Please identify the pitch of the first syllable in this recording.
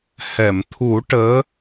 low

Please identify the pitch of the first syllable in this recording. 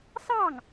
falling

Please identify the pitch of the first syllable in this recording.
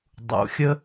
low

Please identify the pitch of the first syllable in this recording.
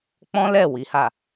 high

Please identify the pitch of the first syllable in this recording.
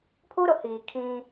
high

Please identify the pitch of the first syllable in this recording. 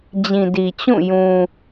low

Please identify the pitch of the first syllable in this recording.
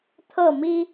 falling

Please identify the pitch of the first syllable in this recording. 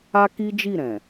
high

